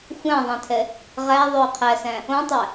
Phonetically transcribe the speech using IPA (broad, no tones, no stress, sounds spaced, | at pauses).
xʷ æ̃ ðˤ æ̃ tʰ ɛ | ʁ æ ðˤ ɵː qʰ æ s æ̃ | õ tˤ æ